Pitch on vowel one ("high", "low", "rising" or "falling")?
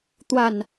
falling